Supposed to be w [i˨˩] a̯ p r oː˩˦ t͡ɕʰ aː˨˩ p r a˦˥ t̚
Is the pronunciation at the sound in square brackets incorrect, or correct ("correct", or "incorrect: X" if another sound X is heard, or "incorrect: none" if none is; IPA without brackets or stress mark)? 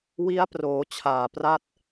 incorrect: i˦˥